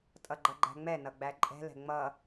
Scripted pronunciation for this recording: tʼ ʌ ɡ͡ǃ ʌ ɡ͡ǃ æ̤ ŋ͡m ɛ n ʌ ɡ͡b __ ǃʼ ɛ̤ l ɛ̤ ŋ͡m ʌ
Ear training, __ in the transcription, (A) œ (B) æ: B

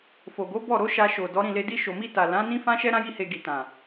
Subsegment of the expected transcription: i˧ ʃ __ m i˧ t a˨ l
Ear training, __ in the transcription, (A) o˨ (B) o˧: A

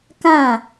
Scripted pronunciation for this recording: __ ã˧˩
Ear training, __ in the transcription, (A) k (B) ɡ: A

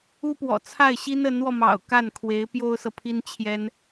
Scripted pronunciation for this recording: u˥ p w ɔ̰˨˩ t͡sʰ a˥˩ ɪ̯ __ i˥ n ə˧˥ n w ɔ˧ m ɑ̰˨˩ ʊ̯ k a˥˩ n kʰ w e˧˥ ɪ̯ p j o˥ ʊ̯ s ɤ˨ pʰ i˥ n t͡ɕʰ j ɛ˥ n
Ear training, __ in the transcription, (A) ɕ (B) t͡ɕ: A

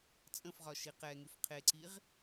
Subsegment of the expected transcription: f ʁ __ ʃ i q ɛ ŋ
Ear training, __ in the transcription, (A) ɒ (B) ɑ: A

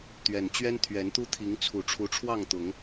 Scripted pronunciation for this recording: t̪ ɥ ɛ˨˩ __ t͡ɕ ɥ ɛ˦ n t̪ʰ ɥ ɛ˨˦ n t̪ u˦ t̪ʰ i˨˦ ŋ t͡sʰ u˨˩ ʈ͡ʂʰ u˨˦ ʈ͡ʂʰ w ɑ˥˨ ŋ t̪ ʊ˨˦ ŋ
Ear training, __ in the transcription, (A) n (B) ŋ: A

